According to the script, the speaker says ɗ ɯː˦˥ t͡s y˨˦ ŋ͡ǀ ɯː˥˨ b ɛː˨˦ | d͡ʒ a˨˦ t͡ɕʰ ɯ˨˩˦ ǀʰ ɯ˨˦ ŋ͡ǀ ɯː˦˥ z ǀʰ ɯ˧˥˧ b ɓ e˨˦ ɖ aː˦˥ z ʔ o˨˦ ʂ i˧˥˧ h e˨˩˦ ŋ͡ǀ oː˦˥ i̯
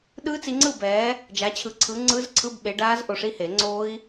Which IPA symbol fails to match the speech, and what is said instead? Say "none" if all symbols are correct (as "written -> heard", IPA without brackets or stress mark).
y˨˦ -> i˨˦